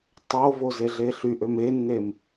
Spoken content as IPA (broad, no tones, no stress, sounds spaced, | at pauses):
tˤ o v o z e ɮ e ɬ y ʔ ø m e nː e m